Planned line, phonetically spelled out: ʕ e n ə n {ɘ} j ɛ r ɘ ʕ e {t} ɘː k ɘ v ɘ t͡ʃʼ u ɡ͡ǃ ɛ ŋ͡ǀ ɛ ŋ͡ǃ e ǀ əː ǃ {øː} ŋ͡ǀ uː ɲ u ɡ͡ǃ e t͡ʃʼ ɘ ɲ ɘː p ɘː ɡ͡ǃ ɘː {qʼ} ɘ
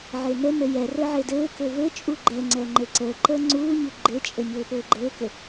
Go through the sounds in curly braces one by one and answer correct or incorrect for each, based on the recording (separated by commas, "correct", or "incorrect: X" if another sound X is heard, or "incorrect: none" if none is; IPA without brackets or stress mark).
correct, incorrect: d, incorrect: əː, incorrect: k